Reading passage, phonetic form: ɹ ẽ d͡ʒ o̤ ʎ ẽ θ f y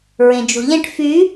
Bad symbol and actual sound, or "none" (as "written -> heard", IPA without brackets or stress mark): θ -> ʈ